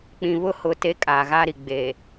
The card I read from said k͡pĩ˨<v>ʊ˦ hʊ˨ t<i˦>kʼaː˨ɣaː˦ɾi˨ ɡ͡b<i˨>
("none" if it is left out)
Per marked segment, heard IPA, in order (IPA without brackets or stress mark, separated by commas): β, e˦, e˨